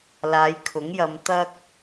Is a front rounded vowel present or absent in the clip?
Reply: absent